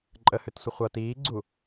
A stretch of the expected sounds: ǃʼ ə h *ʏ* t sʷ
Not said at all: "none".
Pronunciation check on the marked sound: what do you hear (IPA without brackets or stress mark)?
ʏ